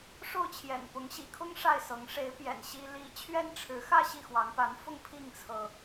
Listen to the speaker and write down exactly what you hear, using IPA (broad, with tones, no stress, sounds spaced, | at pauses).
ʂ o˥˩ ʊ̯ t͡ɕʰ j ɛ̰˨˩ n p ʊ˧˥ ŋ ɕ ḭ˨˩ kʰ ʊ˥ ŋ ʂ a˥˩ ɪ̯ s ɤ˧˥ ŋ ʂ e˧˥ ɪ̯ p j ɛ̰˨˩ n ɕ i˥ l i˥ t͡ɕʰ ɥ ɛ˥ n ʈ͡ʂʰ ɻ̩˧˥ x ä˥˧ ɕ i˥˩ x w ɑ˧˥ ŋ p a˧˥ n f ʊ˥˧ ŋ pʰ i˥˩ ŋ t͡sʰ ɤ˩